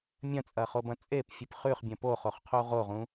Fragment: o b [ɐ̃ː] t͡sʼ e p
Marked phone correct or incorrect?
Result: incorrect